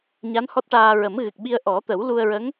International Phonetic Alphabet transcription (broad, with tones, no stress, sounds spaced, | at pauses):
ɲ a˧˥ n h ɔ˦˥ t̚ ʈ aː˧ ɹ ə˨˩˦ m ɣ ɨ˨˩ k̚ ɓ i˧ ə̯ ʔ ɔ˨˩˦ t̪ ə˨˩˦ w l u˧ ə̯ ɹ ə˧˥ ŋ